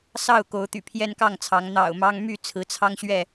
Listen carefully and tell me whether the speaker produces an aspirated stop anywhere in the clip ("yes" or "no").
yes